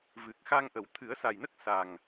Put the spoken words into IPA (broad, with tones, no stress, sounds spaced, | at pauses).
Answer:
v ɨ˨˩ k̚ x a˧ ŋ ʔ ə˨˩˨ w t̪ʰ ɨ˨˩˦ ə̯ s a˨˩ j n ə˦˥ k̚ s a˨˩ ŋ